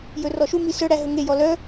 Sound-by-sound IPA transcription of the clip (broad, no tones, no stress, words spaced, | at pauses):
jɵrɔʃumi sœɽæ ɦɵŋejɔ lœ